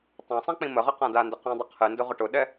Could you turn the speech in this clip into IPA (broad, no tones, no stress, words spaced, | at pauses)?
tˤãsˤɛ̃ k͡pĩməʁə qãdandə qĩdˤə qʰɨndʊ ʁʊʈʊɗɛ